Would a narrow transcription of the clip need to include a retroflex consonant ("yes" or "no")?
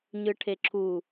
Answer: yes